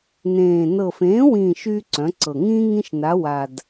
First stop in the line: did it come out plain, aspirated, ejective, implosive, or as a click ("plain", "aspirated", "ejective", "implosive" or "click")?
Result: click